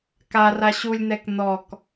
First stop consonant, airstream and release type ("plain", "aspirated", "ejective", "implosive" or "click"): plain